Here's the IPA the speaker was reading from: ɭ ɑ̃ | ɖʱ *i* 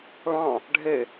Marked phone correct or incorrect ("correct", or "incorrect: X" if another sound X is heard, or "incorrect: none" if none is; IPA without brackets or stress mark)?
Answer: incorrect: e